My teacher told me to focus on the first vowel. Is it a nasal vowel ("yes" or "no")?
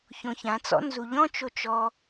yes